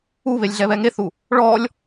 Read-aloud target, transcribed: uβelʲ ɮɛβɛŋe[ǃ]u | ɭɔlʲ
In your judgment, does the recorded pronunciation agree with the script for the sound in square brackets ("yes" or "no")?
no